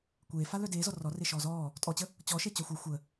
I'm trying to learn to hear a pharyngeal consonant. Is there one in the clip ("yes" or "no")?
no